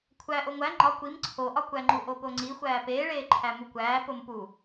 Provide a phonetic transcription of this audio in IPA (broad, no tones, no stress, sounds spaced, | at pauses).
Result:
kʷʰ æ ʔ o ŋʷ æ ŋ͡ǃ ɒ kʷ i m ǀʰ o ʔ ɒ kʷ æ ŋ͡ǃ u ʔ o p o ŋ͡ǀ i xʷ æː p eː ɭ eː ǃʰ æ m u kʷ æː p o m p u